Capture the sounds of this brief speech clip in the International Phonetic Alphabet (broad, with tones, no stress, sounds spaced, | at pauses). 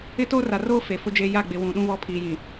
ɪ˦ t oː˦ r a˨ r oː˦ f e˨ f ʊ˦ d͡ʒ e˦ j a˦˨ ɡ͡b ɪ˨ w ũ˨ ɗ ũ˦ β ɔ˦ pʰ iː˨ j ĩ˨